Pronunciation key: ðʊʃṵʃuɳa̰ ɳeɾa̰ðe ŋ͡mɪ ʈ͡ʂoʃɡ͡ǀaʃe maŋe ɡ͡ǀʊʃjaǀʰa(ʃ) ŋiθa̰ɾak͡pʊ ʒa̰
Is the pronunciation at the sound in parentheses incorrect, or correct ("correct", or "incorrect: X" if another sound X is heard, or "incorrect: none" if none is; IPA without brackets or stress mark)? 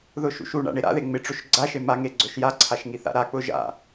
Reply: correct